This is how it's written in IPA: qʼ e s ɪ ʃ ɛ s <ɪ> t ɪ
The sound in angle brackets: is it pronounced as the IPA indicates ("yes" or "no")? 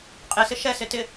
yes